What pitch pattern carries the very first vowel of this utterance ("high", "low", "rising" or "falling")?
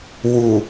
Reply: low